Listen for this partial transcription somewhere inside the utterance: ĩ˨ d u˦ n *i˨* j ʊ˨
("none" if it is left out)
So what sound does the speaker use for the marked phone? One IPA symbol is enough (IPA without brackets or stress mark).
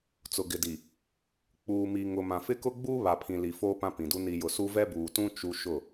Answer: i˨